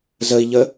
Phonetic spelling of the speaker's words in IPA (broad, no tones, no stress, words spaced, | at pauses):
zəi̯ʎə